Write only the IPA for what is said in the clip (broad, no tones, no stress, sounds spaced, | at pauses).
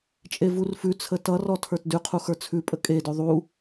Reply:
t͡ʃʼ e v u r f ʉ t͡sʰ ə t ʌ r ɔ tʰ ə˞ t d ʉ qʰ u x ə˞ t͡sʰ ʉ pʼ ə kʼ e d ʉ ðˤ u